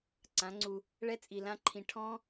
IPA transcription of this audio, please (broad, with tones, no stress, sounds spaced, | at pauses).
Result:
ǀ ã˨˦ ŋ͡ǀ u˧ | ɭ ɛ˦ t͡sʼ i˧ l ã˦ ǃʰ ĩ˧ ʈʰ ɔ̃˦